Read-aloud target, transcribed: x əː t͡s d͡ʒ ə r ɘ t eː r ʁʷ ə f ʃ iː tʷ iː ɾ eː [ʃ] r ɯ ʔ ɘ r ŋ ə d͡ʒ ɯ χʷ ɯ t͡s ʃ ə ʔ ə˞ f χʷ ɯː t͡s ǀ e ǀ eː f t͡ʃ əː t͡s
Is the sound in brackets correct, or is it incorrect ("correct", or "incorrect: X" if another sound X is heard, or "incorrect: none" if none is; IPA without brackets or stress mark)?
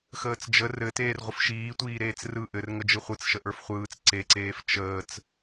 incorrect: t͡s